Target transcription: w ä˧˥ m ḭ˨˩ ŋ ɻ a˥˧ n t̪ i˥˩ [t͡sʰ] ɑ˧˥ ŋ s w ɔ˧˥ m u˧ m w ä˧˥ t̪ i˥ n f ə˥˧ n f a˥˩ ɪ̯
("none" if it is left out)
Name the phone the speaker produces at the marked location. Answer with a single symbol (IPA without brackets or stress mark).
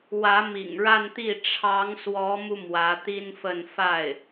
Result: ʈ͡ʂʰ